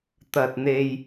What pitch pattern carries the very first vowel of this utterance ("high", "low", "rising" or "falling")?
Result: low